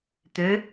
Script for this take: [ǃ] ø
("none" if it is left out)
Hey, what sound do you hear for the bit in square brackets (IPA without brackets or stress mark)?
t̪